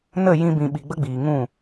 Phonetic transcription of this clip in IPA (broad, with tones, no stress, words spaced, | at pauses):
nə˦˨ jĩ˧bĩ˨ɓi˨ ɡ͡bə˦ɡ͡biː˨ŋũ˦˨